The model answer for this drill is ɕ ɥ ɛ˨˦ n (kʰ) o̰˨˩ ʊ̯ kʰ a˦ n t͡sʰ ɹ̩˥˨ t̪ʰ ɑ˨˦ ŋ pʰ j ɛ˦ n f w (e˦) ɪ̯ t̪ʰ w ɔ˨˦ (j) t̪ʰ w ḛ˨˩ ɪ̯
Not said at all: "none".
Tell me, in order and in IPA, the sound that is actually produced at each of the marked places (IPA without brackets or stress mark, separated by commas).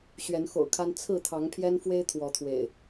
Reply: x, e˦, none